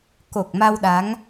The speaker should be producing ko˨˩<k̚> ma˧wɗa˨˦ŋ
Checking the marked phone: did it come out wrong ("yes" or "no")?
no